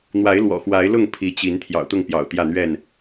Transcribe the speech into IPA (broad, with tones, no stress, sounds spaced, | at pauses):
n̪ w a˨˦ ɪ̯ l w ɔ̰˨˩ x w a˨˦ ɪ̯ l ʊ˥˨ ŋ pʰ i˨˦ t͡ɕ i˨˦ n t̪ʰ j ɑ̰˨˩ ʊ̯ t̪ ʊ˥˨ ŋ p j ɑ̰˨˩ ʊ̯ t̪ j ä˥˨ n̪ ɥ ɛ˥˨ n